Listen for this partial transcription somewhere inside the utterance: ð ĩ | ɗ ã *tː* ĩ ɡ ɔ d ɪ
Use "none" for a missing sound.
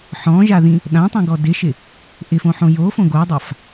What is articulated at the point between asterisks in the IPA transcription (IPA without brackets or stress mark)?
tˤ